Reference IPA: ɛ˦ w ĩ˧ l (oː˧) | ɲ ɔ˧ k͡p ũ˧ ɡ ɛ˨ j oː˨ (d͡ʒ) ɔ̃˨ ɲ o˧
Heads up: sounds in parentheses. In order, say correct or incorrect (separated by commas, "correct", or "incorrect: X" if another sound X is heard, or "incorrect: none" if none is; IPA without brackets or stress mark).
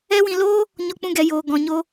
incorrect: oː˦, incorrect: ɡ